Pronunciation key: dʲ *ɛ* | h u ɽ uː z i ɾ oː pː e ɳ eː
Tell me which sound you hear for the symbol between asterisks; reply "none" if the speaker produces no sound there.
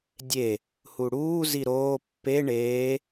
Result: e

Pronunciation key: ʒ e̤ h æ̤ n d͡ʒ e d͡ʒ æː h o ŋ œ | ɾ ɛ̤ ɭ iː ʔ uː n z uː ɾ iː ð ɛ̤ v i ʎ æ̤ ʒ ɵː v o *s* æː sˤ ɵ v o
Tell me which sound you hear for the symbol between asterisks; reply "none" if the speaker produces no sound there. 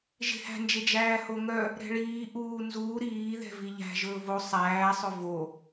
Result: sˤ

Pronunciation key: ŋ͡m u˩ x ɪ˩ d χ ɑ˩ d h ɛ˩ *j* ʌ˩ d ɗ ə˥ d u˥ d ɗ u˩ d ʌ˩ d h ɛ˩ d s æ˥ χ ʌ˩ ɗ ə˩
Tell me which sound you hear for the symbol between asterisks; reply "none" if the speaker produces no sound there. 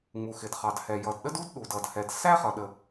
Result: j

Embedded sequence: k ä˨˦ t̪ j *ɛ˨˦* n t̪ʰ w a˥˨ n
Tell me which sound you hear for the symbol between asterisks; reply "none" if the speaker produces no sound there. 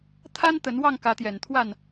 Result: ɛ˨˩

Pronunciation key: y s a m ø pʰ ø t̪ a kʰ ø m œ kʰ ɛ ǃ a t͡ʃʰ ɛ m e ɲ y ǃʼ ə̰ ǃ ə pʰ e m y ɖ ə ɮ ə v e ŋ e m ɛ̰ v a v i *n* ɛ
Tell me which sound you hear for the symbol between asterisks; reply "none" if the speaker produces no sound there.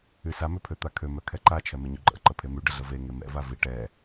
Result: ʈ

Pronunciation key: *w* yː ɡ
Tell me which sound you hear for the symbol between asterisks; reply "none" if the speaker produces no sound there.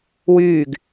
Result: w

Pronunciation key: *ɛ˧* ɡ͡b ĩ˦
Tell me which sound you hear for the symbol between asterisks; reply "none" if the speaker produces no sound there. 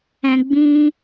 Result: ɛ̃˧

